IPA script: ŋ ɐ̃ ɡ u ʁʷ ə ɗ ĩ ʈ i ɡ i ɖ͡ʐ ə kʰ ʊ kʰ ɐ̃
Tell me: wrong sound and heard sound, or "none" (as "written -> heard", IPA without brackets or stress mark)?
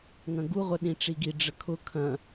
ʈ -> ʈ͡ʂ